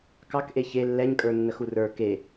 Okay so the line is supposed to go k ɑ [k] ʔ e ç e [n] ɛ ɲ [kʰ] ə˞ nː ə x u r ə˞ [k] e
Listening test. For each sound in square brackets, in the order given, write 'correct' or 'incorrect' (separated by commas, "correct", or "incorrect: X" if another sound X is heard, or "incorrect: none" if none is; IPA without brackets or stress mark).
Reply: correct, incorrect: lː, incorrect: kʼ, correct